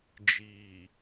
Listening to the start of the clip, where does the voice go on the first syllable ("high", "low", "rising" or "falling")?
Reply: low